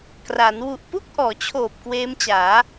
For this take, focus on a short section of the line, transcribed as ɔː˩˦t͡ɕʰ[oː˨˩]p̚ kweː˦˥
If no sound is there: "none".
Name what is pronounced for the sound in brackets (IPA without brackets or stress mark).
oː˨˩